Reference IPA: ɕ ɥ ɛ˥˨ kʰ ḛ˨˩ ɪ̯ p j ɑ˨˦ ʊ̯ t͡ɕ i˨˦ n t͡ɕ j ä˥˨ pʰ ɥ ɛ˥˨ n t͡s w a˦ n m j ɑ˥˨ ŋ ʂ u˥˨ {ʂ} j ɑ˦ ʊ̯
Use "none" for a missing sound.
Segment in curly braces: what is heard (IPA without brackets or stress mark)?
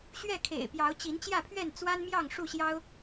ɕ